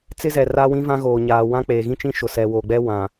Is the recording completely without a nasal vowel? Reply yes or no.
no